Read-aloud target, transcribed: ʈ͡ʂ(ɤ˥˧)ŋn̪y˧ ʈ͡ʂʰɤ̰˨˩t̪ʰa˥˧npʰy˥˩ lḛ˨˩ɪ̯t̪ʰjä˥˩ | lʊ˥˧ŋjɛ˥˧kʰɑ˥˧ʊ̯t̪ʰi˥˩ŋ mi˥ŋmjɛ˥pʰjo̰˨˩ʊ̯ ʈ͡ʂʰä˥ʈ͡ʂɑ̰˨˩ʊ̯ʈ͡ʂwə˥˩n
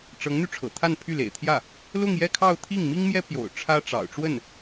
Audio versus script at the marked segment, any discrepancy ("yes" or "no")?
yes